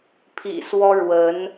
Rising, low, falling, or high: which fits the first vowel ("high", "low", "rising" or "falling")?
low